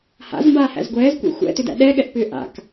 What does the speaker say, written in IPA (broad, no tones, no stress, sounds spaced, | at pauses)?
h a̰ z m b aː h æ̰ z ɡʷ ɛː z kʷ ḛ xʷ ɛ̰ t ʏ d æ̰ ɗ ɛ ɠ ɛ ʔ p ʏː ʔ a̰ k